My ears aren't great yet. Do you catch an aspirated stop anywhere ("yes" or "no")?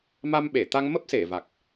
no